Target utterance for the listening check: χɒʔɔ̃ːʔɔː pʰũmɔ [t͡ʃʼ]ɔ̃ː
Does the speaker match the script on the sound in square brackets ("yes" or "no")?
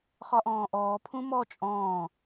yes